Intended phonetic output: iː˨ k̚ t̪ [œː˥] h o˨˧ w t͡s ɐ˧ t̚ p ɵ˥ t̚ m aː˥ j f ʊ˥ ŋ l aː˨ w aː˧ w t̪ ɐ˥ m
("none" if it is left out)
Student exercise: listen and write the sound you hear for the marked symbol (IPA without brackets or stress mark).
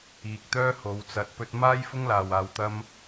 œː˥